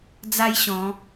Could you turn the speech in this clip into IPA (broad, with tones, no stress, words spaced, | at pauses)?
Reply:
d͡za˦j ɕɔ̃˨˦